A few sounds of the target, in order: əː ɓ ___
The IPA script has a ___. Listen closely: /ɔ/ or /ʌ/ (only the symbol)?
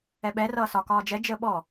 ɔ